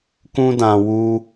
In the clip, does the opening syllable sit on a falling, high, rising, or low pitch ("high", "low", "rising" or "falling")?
high